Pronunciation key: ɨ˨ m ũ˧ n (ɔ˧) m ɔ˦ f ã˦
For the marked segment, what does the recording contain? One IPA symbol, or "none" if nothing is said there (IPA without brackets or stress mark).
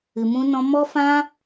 ɔ̃˧